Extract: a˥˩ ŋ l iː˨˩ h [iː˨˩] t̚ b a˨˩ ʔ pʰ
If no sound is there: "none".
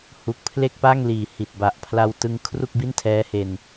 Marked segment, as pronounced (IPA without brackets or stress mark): i˨˩